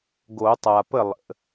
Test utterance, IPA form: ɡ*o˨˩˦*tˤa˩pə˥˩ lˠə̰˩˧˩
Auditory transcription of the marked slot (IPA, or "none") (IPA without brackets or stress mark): o˨˩˦